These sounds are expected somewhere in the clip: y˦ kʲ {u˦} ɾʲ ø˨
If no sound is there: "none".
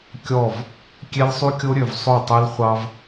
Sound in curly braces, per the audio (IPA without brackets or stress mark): o˦